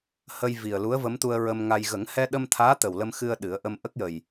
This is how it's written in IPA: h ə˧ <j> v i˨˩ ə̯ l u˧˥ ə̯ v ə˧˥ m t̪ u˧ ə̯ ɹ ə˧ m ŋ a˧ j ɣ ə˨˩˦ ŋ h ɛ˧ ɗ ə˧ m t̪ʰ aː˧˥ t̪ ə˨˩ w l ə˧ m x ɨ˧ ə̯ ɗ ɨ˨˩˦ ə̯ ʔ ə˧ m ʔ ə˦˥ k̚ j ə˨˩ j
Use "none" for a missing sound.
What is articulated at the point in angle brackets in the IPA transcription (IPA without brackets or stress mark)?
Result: j